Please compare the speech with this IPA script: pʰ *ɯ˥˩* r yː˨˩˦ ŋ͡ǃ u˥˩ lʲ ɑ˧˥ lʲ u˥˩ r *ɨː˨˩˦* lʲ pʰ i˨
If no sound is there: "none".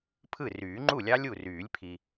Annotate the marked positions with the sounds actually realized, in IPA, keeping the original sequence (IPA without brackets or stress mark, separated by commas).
ɯ˥˩, yː˨˩˦